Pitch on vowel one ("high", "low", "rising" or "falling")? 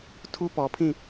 high